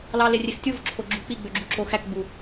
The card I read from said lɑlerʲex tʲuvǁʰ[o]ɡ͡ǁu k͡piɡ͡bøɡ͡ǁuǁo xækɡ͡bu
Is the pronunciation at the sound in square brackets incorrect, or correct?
correct